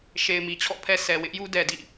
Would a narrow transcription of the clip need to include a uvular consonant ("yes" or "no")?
no